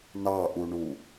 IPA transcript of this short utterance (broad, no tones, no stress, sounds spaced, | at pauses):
n ɑ ʔ u ɳ u